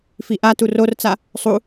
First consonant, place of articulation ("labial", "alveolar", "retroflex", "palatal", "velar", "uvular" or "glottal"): labial